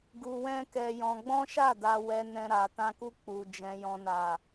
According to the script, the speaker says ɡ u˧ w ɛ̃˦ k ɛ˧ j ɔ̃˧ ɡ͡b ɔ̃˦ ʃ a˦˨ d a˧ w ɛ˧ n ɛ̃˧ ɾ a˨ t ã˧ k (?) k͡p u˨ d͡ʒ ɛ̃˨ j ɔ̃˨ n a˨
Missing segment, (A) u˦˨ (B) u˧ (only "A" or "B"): B